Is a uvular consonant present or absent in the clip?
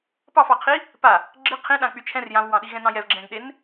present